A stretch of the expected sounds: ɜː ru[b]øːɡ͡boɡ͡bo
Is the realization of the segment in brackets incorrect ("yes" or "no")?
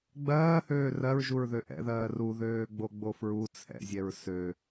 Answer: yes